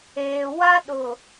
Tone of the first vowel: low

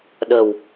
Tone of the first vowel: low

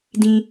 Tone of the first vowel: high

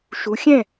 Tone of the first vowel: rising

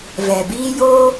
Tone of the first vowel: low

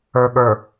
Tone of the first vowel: low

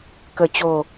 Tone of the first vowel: falling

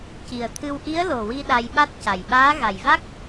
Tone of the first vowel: low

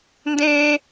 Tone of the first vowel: high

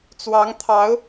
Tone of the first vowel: rising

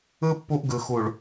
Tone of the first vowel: high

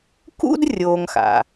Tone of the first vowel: high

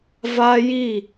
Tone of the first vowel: high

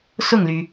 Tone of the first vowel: falling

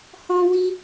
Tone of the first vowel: high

